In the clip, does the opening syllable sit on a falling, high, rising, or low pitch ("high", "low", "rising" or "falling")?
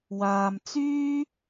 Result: low